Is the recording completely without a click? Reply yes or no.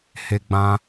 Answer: yes